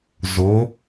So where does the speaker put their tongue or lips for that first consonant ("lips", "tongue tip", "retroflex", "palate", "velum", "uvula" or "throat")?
tongue tip